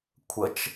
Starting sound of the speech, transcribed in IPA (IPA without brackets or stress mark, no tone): kʷʰ